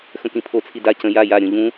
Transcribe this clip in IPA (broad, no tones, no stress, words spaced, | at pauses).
xə̃kĩpʰo t͡sʰida cə̃ ja ja ɾʲõʎũ